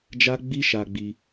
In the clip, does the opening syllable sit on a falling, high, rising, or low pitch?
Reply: high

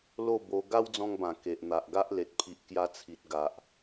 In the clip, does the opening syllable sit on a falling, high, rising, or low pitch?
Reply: falling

